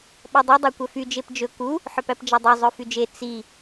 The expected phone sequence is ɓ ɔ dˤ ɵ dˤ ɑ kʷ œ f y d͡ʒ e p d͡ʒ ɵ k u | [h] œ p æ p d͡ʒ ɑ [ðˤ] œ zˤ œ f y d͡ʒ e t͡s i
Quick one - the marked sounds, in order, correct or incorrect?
incorrect, incorrect

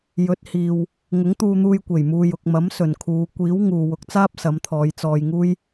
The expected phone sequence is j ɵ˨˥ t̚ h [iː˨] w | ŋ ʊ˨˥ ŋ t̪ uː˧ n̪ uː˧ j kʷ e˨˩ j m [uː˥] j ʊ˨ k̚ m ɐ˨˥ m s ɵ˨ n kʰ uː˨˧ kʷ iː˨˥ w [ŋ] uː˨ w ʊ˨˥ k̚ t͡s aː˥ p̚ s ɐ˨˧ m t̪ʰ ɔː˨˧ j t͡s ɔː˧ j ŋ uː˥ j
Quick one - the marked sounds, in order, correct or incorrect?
correct, incorrect, correct

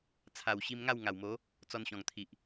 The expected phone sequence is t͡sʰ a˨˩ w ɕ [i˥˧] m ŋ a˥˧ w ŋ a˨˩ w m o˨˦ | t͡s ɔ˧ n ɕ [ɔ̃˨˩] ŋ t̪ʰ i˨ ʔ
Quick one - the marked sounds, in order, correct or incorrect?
incorrect, correct

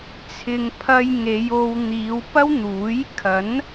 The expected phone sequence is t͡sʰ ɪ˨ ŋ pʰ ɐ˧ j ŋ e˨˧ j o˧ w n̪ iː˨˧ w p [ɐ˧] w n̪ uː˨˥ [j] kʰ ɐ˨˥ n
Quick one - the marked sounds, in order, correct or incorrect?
incorrect, correct

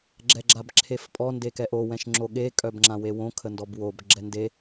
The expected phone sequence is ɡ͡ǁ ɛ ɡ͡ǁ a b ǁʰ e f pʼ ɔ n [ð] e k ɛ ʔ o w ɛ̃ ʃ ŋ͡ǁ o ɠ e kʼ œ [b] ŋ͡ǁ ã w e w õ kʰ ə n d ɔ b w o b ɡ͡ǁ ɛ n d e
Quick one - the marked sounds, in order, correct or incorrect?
incorrect, correct

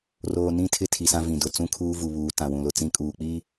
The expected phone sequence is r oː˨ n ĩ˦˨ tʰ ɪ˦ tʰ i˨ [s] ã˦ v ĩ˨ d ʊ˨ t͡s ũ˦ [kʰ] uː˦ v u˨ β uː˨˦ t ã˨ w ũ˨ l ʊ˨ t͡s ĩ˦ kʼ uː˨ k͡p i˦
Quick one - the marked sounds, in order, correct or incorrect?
correct, correct

